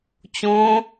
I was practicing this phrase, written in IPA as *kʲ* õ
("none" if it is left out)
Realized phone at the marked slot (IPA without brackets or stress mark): t͡ɕ